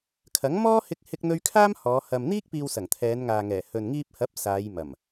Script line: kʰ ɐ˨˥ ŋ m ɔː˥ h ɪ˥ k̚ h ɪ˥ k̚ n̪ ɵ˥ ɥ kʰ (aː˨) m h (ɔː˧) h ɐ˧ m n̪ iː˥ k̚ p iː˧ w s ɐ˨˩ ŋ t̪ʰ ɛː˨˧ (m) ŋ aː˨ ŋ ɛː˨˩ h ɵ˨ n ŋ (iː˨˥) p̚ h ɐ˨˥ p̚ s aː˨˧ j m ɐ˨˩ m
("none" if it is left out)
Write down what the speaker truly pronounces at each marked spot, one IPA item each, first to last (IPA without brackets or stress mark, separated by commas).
aː˥, ɔː˨˧, n, iː˧